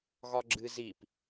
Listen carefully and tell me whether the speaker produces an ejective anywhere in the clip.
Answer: no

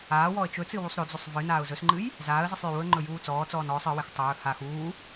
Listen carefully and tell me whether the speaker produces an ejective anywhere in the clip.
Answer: no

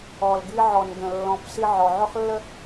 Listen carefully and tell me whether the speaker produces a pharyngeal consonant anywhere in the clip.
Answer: yes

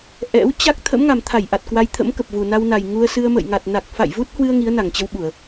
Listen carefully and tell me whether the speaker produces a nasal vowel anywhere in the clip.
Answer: no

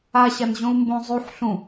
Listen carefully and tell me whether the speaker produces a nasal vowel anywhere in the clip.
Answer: yes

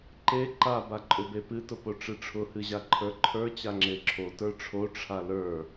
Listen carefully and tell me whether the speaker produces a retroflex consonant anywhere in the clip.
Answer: yes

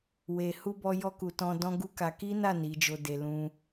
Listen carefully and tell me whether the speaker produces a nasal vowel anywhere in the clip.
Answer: yes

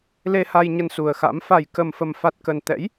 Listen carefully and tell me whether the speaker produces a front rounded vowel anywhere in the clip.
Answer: no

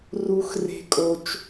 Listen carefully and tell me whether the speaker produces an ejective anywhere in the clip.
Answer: yes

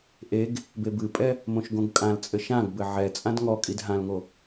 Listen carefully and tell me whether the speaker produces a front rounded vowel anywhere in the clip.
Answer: no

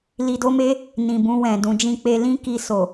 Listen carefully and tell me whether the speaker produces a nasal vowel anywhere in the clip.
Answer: yes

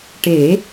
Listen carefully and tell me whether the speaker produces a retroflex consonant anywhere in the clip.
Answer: yes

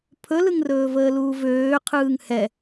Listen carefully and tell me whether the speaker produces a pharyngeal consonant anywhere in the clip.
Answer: no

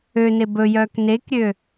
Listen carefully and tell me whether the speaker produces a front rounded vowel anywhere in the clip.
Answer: yes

